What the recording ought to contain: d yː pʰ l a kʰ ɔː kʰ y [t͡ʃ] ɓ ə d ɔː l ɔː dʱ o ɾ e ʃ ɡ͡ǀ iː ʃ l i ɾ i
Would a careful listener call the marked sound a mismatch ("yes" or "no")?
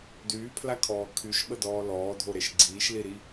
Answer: yes